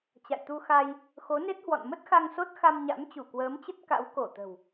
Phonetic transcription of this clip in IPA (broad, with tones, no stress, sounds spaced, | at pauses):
t͡ɕ a̰˧˨ j t̪ u˧ x a˧ j | x o˨˦ n e˦˥ t̚ h w ɔ̰˧˨ n m ə˦˥ t̚ x a˧ ŋ s o˦˥ t̚ x a˧ m ɲ a̰˧˥ m t͡ɕ u˧˩ k w əː˨˦ m t͡ɕ ə˦˥ t̚ k a̰˧˥ w k o˧˩ t̪ ə̤˨˩ w